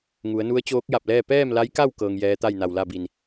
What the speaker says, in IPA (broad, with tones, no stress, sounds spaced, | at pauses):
ŋ u˩˧ ə̯ n u˧˥ ə̯ t͡ɕ oː˧˥ k̚ j a˧˩ p̚ l ɛː˥˨ p ɛː˥˨ m l a˧˥ j k a˥˨ w k ɤː˧ ŋ j ɛː˧˥ t̪ a˥˨ j n a˧˩ w l a˥˨ b i˧˩ n